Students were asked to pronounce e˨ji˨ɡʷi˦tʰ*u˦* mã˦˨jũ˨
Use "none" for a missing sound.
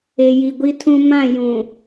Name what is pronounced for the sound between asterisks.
ũ˦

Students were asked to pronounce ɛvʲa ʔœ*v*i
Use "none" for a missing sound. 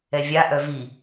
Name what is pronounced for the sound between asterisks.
v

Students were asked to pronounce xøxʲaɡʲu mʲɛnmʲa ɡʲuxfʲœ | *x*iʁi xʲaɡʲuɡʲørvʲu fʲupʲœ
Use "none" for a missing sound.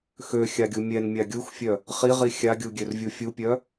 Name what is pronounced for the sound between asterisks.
χ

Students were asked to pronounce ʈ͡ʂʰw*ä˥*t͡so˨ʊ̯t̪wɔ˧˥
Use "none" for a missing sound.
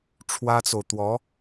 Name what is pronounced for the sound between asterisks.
ä˥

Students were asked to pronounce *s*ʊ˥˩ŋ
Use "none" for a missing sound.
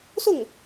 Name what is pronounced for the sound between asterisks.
s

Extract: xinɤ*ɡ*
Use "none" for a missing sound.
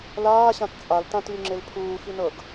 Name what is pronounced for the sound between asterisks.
ɡ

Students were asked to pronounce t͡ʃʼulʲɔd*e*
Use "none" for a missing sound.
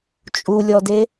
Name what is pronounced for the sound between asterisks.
e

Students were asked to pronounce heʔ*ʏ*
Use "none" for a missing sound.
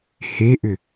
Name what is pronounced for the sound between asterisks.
ʏ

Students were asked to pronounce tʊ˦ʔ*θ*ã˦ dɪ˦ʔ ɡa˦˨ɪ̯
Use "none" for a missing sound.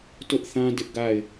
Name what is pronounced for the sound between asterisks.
θ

